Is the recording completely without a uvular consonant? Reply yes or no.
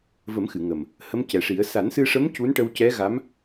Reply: yes